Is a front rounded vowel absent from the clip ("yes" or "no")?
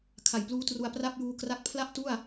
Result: yes